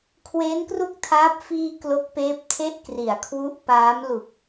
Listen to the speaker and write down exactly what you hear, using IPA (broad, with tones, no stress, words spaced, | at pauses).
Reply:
kʰweː˦˥nkru˥˩k̚tʰaː˦˥p̚ fiː˧ klo˦˥k̚peː˦˥p̚tʰe˥˩ʔ kri˩˦a̯kʰwu˦˥ʔpaː˦˥m lu˨˩k̚